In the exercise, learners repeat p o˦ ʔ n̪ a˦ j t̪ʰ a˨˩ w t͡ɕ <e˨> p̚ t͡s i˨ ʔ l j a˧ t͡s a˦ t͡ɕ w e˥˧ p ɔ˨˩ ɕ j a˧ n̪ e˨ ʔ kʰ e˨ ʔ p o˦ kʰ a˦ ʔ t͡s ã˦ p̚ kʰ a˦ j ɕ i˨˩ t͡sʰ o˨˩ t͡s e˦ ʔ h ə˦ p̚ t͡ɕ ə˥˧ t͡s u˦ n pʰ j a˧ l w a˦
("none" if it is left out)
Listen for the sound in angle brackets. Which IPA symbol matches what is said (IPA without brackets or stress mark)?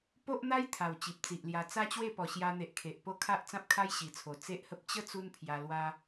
i˨